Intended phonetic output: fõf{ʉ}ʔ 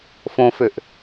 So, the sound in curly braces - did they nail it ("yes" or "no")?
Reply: no